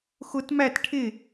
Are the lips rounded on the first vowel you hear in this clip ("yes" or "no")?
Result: yes